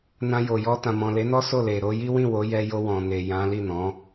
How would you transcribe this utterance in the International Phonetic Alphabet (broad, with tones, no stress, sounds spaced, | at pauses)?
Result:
n ã˧ j o˨ j ɔ˧ t ã˨ m ɔ̃˨ l e˨˦ n ɔ˦ s o˦˨ l e˨ ɾ o˧ j i˦ w ĩ˦˨ w o˨˦ j ɛ˧ j o˧ w ɔ̃˨ n e˨ j ã˨˦ l i˦˨ n ɔ̃˨˦